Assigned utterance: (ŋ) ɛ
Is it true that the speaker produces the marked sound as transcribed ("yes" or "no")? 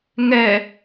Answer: yes